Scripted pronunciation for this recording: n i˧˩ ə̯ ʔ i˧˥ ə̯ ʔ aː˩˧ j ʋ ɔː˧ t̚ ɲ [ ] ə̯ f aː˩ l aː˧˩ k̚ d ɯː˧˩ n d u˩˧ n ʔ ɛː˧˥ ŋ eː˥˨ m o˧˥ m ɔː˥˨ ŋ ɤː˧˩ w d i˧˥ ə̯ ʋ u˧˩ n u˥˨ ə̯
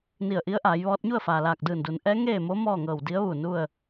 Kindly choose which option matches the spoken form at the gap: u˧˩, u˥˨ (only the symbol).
u˥˨